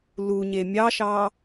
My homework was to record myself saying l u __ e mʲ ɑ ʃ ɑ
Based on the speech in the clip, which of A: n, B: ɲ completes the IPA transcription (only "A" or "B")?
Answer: B